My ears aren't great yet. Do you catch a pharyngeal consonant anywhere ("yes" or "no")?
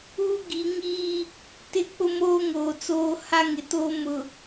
no